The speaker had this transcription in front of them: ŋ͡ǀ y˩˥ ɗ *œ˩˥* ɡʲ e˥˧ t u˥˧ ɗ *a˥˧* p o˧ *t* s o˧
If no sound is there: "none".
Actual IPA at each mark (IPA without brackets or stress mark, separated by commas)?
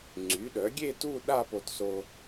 œ˩˥, a˥˧, t